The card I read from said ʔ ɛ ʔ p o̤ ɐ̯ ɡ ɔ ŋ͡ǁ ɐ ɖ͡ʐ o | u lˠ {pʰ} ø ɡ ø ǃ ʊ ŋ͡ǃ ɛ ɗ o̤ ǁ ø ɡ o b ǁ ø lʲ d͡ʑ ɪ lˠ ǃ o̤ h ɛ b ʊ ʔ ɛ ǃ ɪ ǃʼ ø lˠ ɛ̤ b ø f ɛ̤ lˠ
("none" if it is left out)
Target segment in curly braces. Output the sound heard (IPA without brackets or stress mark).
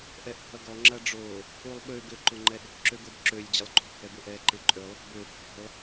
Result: ɓ